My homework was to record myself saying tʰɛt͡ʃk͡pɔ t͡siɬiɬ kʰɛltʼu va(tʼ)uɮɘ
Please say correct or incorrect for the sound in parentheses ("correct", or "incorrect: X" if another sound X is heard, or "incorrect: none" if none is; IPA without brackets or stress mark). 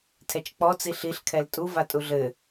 correct